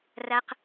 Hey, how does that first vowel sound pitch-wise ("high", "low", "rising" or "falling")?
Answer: high